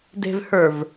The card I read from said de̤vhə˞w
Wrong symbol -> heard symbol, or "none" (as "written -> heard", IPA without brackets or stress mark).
w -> v